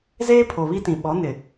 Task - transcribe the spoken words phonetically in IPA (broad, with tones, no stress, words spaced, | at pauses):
zeː˦pʰo˨βi˦tĩ˨ ɓɔ˨˦nɪ˨